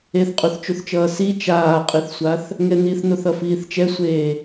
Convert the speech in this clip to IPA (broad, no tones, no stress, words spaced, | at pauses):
eθqʼuθt͡ʃuθt͡ʃʌː si t͡ʃaːqʼiθsʷaθ | ŋɛniθnoθ ʌfiːθt͡ʃɛsʷeː